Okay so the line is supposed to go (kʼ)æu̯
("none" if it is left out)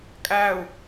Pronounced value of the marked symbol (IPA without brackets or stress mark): kʼ